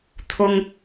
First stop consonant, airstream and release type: aspirated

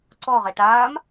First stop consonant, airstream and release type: click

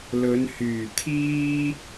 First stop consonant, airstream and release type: aspirated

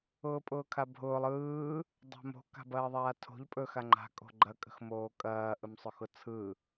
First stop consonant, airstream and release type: ejective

